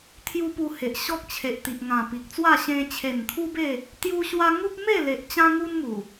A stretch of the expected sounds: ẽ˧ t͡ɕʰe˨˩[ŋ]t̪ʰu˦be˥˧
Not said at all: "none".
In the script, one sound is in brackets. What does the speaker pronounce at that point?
n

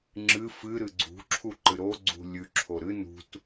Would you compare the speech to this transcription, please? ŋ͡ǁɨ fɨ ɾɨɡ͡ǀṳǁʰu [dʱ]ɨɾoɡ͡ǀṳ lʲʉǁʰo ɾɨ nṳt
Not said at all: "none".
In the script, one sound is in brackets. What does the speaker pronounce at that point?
ǃ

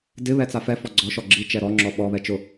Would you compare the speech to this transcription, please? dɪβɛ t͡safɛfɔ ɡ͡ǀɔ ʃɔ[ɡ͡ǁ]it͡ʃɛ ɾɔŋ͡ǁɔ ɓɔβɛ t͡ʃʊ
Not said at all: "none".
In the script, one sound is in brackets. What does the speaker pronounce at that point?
ɡ͡ǁ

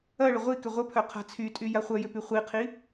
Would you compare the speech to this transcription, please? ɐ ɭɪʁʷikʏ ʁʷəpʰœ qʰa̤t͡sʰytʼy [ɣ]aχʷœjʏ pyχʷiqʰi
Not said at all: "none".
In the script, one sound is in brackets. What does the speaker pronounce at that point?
j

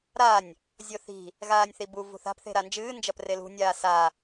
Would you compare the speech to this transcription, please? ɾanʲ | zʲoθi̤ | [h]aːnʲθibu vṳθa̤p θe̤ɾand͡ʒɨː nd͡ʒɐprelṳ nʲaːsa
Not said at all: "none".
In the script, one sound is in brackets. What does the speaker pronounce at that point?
ɣ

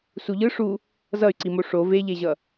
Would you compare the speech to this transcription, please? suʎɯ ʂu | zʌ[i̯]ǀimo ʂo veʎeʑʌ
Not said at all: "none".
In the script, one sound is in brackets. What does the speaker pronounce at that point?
y̯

